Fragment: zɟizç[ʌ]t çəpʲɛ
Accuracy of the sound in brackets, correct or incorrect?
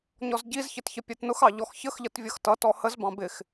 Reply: incorrect